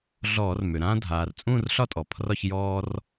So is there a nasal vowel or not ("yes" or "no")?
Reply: yes